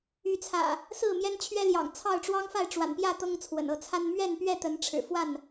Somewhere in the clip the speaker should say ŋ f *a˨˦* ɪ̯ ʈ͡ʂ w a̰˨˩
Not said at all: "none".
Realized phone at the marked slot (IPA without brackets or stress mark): a˥˨